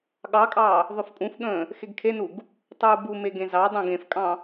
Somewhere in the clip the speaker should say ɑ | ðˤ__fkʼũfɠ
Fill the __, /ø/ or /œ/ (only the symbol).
ø